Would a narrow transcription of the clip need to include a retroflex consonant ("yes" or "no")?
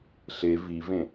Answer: no